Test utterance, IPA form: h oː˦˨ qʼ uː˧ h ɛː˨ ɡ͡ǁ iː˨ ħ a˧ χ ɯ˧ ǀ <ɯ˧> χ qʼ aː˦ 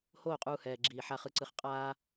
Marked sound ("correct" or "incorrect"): correct